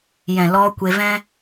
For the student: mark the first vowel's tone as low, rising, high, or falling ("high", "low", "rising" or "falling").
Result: low